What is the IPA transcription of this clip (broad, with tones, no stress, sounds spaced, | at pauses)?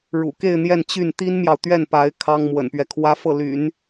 ɻ ṵ˨˩ k e˥˧ ɪ̯ n̪ j ɛ˥˧ n t͡ɕ y˥˩ n t̪ i˥ n m j ɑ˨ ʊ̯ t̪ ɥ ɛ˥˩ n p a˧˥ ɪ̯ kʰ ɑ˥ ŋ m w ə̰˨˩ n p ɥ ɛ˦ kʰ w ä˥ f ɤ˥˩ l y̰˨˩˦ n